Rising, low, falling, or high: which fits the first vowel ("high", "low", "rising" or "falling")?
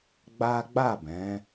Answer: high